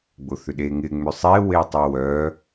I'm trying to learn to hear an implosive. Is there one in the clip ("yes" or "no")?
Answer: yes